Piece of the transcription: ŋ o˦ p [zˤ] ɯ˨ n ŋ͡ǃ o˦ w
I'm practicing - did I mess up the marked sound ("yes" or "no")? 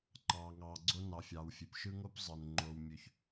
no